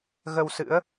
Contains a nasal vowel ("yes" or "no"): no